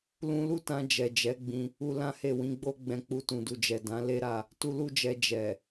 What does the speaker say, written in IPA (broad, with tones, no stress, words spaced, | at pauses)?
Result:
lũ˧lu˦tã˧ d͡ʒɛ˨d͡ʒɛ˨˦ɡ͡bĩ˧ | u˧lã˦he˦˨ wĩ˨˦ɡ͡bo˦ɡ͡bɛ̃˧k͡pu˧ tũ˨du˨d͡ʒɛ˨ dã˨˦le˦ɾa˦˨ | tu˧lu˦d͡ʒɛ˧ d͡ʒɛ˨